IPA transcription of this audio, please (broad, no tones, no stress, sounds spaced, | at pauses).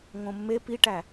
ŋ õ mː e p i ʈ æ